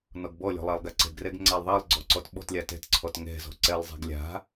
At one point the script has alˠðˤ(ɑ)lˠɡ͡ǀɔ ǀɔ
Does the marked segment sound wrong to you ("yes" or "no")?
no